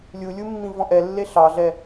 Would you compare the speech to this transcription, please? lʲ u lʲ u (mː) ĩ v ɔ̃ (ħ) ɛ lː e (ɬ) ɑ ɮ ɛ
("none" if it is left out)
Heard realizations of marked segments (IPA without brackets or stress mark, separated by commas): mː, ʔ, ɬ